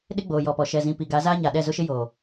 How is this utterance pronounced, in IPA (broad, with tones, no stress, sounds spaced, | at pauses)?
ɗ ɪ˦ ɡ͡b oː˨ j ɔ˨ p ɔ˨ ʃ ɛ˨ z ĩ˨ p i˨ ɡ a˨˦ z aː˦ ɲ a˨ ɗ ɛ˦˨ z ʊ˦ ʃ ɪ˦ j oː˨